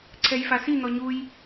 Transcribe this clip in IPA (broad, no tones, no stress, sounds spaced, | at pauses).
ǀʰ ɛ j f a s i n̪ ɔ ɲ u j